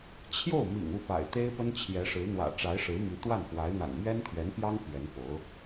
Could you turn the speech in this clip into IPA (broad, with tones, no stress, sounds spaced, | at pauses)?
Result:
t͡ɕʰ j o˥˩ ʊ̯ m ḭ˨˩ ŋ u˥˩ p a̰˨˩ ɪ̯ t̪ e˥ ɪ̯ p ə˥ n t͡ɕʰ j ɛ˧˥ ʂ ɻ̩˧˥ n̪ w ä̰˨˩ ʈ͡ʂ a˧˥ ɪ̯ ʂ ɻ̩˧˥ m y˧˥ t̪ w a˥˩ n p w a˧˥ ɪ̯ n̪ a̰˨˩ n m ɥ ɛ˥ n t̪ʰ ɥ ɛ˧˥ n p j ɑ˥ ŋ p ɥ ɛ˧˥ n p o˧˥ ʊ̯